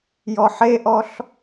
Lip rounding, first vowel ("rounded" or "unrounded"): rounded